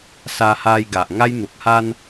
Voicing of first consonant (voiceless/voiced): voiceless